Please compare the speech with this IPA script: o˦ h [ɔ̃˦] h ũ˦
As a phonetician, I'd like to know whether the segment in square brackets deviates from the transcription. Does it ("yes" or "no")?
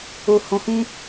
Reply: no